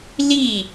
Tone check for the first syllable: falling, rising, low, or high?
falling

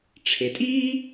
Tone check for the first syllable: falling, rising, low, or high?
low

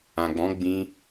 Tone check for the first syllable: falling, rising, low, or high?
low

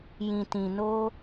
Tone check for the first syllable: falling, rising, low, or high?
low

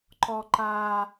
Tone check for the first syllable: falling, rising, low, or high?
high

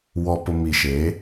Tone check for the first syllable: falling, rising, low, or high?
low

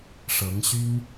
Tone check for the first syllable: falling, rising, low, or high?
rising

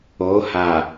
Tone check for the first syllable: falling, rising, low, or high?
rising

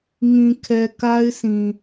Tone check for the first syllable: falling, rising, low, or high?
low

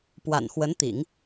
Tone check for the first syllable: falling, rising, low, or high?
low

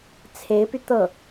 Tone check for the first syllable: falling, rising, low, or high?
rising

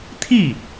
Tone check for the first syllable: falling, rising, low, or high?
falling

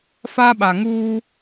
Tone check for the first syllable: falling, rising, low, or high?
high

